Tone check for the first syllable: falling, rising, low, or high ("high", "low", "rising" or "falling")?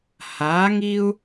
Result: rising